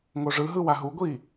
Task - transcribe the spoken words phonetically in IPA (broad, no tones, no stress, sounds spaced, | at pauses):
ŋ o ʐ ɯ ɦ ɯ w a ɦ u ɡʷ i